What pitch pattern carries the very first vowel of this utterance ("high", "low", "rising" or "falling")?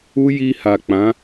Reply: high